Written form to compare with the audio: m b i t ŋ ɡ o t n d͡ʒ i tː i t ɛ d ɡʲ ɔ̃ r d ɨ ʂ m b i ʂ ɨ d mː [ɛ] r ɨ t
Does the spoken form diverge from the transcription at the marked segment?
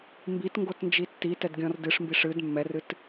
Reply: no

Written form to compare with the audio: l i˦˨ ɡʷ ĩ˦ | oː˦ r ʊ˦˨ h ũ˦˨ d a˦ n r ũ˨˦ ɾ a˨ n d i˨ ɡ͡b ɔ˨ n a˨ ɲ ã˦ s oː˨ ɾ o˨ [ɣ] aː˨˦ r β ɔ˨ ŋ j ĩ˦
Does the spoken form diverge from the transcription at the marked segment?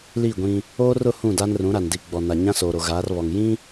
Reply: no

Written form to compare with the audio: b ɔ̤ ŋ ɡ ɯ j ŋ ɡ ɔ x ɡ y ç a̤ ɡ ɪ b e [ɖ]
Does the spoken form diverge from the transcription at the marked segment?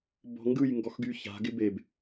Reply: yes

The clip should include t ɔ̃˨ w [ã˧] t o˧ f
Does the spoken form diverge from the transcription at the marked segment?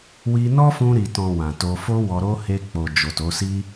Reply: yes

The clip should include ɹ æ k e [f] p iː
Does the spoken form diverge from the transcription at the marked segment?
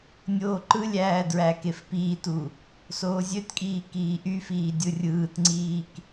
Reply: no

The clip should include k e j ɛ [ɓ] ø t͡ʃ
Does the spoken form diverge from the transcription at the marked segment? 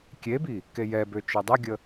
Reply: yes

